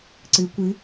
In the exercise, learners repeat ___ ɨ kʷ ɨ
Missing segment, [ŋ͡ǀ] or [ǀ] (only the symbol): ǀ